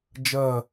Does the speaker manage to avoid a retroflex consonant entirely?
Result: yes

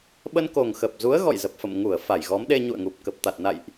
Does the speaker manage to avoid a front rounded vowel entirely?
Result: yes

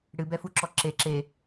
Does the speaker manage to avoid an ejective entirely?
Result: yes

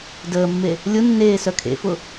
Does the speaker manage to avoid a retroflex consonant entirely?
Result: yes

